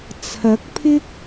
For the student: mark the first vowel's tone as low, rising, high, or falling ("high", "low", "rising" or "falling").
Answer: rising